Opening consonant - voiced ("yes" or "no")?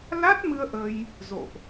yes